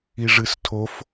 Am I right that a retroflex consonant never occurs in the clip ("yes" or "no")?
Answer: no